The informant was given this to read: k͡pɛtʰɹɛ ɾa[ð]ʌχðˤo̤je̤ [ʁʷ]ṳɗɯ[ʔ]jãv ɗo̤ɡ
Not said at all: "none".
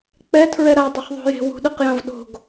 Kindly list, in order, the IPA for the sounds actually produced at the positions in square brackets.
dˤ, w, q

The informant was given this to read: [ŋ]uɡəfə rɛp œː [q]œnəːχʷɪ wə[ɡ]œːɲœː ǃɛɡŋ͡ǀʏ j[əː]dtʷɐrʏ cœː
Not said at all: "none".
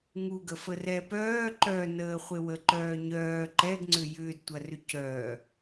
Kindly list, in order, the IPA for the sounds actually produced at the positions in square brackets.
ŋ, ǃ, ǃ, ʏː

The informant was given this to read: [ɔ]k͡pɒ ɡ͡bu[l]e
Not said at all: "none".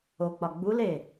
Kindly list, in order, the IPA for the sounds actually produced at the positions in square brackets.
o, l

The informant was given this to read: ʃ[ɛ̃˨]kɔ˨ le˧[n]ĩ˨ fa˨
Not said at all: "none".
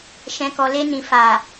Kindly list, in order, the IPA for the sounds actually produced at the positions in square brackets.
ɛ̃˨, n

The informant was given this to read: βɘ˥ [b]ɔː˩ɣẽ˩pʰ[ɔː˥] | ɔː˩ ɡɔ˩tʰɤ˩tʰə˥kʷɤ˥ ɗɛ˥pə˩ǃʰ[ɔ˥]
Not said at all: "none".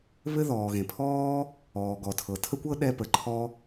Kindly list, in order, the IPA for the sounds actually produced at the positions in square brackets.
ð, ɔː˥, ɔ˥

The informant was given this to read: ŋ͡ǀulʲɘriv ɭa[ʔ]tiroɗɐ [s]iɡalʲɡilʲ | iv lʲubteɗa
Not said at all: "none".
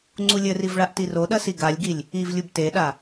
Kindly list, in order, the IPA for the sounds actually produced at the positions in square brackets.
ʔ, s

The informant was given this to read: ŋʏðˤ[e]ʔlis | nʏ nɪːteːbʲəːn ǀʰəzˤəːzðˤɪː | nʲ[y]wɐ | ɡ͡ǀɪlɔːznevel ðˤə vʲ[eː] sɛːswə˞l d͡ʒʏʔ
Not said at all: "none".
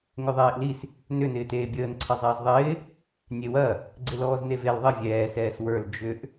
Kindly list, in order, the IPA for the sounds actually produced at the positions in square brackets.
eː, e, ɛː

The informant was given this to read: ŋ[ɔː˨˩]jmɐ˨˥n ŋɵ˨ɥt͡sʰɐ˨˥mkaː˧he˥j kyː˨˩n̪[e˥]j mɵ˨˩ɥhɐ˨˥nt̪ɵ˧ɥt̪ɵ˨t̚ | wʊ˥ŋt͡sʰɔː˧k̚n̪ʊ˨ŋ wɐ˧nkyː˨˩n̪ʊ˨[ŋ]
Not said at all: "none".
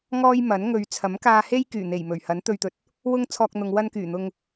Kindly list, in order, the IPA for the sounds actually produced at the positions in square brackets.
ɔː˥, e˨˩, ŋ

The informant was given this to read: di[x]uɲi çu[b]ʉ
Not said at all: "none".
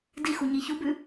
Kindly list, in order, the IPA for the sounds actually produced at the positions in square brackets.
x, b

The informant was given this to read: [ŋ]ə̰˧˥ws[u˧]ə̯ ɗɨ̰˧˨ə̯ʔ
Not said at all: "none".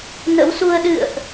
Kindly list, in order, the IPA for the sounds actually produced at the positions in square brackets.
n, u˧

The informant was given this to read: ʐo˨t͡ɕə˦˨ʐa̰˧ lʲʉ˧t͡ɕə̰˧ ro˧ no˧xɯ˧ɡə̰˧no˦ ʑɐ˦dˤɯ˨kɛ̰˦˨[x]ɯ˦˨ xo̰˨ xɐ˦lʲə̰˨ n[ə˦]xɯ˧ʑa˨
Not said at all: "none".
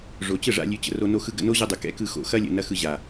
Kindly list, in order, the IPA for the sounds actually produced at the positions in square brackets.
k, ɐ˦

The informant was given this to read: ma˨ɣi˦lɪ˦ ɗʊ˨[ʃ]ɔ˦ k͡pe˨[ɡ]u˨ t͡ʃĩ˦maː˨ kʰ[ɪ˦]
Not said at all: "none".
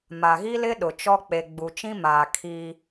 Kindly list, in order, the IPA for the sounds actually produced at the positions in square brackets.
t͡ʃ, ɡ͡b, i˦

